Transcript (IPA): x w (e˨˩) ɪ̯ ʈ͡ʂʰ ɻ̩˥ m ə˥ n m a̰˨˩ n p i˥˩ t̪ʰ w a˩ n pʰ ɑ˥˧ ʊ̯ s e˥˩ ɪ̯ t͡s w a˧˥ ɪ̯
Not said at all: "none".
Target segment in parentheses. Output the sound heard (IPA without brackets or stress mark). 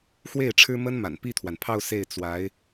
e˥˩